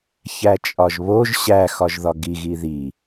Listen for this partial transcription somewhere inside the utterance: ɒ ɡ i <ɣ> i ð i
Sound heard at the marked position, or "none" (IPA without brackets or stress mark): ɣ